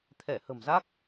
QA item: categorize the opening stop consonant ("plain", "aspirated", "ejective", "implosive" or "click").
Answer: aspirated